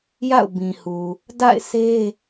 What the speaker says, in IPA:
ja̰˦˨ʊ̯bĩ˨hu˨ | da̰˦˨ɪ̯sʰe˦

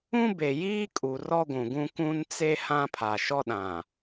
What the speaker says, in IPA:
ũ˦be˨jiː˦kʼu˨ rɔ˦ɡʷũ˨ɡũ˦ kũ˦n t͡se˦ hã˦pʰa˨ʃɔ˦ɗã˨

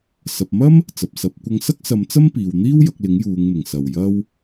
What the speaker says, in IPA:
sɐ˨p̚mɐ˥m | t͡sɐ˨p̚sɐ˨˥p̚ kʷɐ˧ŋsɐ˥k̚sɐ˨˧m t͡sɐ˥mpiː˨wn̪iː˥w jɐ˧k̚lɪ˨˥ŋ juː˨˧ŋmɪ˨˩ŋ sɐ˨˩w jɐ˥w

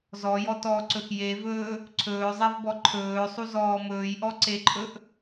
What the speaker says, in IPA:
zɔjɔtɔːǀɵx jevɵː | ǀʰɵːzˤevbɔ ǃʰɵːsˤuzɔː mɵːjʔɔǀeǃʼɵʔ

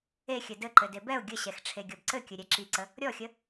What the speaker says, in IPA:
exʲɘ dɘǃɘ debɛʊ̯ ɡʲəɕɛx ʈ͡ʂʰeɡʲɔbǀɘkʲɵ ɾʲɛǁiǀə | ɾʲɔxʲə

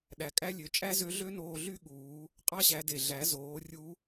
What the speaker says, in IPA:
ɗæ˩˧kʼæ˥lʲø˩˧ t͡ʃʼæ˥zø˧˥ɮø˥ noː˧ɮy˥ɠuː˩˧ | qʼɑ˥ɕæ˩˧de˩ɮæ˩˧ zoː˩˧rʲu˧˥

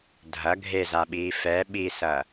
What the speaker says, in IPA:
dʱɐ ɡʱezaɓiː fɛ ɓisɐː

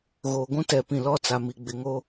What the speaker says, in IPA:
ɣoː˨ɡʷũ˦tɛ˨pĩ˨ lɔ˦t͡sa˨mi˨ɡ͡bɪ˨ ŋo˦

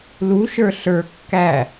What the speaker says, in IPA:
luʃə˞ ɬə˞ kːæ

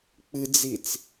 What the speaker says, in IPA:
k͡pɨd͡zit͡s

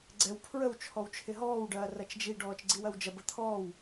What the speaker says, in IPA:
ɡ͡ǀɛw pʰɹəw t͡ʃʰɔwt͡ʃʰɪɦɔːwɖɐː rɐt͡ʃd͡ʒi ɖɔːt͡ʃɡ͡ǀiwɐwd͡ʒɐ bət̪ʰɔːw

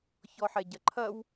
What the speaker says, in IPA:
çɔħɛɟɐǃʰɐw

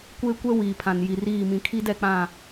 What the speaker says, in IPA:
kʷeː˦kʷɛ˦ wiː˨pʰã˨n ji˨riː˦˨ mĩ˨kʰi˦dɛ˦˨k͡pã˦˨

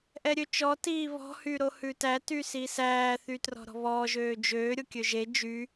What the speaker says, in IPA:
ʔɛɾʲøt͡ʃɔ tiːβɔ̤ hyɾohʉtæ tysisæː θytrɔ̤ɾɔ̤βɔː ʒøːd͡ʒøː ɾʲokʲøʒe d͡ʒy

